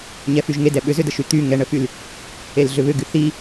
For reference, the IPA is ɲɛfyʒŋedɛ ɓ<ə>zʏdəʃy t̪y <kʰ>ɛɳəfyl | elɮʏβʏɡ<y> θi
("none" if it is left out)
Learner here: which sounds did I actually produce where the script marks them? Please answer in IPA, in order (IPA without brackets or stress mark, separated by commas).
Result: ʏ, ŋ, y